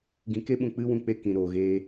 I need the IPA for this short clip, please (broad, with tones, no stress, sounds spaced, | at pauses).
ɡ ĩ˧ k e˦ ɓ ũ˧ k͡p ɨ˦ w ũ˧ k͡p e˧ k ĩ˨ ɾ oː˨ ɣ eː˧